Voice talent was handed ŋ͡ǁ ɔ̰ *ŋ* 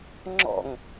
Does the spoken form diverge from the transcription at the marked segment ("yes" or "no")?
no